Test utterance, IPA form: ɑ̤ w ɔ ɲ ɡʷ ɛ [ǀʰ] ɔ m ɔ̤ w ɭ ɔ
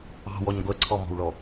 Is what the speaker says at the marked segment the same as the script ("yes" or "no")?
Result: yes